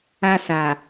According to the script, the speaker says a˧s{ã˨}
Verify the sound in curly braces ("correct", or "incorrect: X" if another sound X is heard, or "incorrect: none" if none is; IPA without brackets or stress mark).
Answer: incorrect: a˨